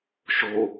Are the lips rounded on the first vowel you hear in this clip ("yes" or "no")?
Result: yes